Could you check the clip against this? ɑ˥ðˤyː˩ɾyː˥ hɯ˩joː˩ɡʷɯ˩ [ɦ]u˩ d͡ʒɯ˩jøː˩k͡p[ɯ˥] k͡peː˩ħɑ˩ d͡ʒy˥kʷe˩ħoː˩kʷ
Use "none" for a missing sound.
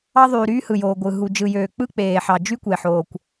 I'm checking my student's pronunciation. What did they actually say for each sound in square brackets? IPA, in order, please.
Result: ɦ, ɯ˥

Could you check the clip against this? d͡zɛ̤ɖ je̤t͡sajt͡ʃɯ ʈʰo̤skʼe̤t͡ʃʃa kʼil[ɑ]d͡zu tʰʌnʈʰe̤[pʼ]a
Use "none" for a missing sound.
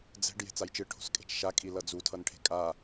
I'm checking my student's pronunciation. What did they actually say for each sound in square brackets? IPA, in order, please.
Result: ʌ, kʼ

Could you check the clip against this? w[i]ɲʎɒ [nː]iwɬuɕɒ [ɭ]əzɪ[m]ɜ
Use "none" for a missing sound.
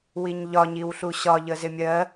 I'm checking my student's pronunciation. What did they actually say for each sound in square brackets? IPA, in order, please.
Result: i, ɲ, ʎ, mʲ

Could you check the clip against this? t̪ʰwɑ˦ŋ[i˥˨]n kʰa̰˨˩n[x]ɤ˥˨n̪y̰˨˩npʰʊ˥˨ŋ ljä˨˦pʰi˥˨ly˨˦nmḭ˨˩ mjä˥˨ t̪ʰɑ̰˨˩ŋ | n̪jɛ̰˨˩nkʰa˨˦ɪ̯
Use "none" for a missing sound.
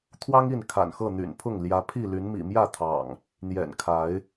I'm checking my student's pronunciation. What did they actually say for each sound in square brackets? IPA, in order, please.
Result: i˥˨, x

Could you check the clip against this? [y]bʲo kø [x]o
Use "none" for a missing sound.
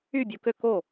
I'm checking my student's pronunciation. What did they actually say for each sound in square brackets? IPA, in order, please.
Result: y, k

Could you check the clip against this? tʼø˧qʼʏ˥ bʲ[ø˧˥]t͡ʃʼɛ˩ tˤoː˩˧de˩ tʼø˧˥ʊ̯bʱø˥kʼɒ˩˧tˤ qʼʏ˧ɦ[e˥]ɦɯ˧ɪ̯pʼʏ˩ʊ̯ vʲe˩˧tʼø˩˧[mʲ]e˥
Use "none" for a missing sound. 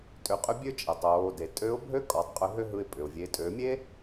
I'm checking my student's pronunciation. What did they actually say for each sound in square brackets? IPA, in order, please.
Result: ø˥, ø˥, mʲ

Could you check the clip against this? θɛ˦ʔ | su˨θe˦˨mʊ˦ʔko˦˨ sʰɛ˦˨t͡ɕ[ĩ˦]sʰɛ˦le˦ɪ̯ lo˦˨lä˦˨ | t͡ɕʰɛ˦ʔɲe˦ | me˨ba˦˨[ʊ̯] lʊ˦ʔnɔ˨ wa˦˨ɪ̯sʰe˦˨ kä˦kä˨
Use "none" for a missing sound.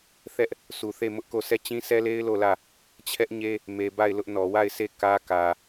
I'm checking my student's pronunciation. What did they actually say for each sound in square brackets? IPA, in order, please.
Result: ĩ˦, ɪ̯

